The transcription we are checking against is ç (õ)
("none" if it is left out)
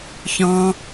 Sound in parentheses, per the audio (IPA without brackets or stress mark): ɔ̃